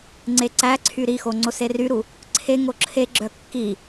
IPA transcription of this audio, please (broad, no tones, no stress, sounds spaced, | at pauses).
ŋ͡ǀ e ǀ æ ǀʰ y ɾ i x o ŋ͡ǀ o s e r y ɾ u | ǀʰ e ŋ o ǁʰ e ɡ͡ǁ œ kː i